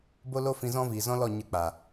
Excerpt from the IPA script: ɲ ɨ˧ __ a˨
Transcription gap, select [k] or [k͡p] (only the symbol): k͡p